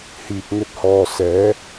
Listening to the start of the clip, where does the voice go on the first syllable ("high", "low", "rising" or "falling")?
low